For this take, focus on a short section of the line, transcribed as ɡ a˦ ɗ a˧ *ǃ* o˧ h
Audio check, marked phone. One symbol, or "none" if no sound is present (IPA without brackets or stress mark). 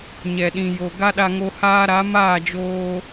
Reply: ŋ